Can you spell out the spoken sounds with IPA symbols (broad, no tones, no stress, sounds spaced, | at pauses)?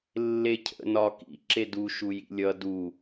lː e cʰ ə̰ n ɒ k ḭ ǁ e d u ʃ u j ḭ lʲ ʌ d u